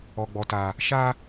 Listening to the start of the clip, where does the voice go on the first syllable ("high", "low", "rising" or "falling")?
high